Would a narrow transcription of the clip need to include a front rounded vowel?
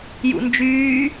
yes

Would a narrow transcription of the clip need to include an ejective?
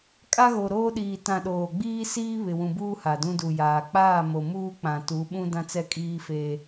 yes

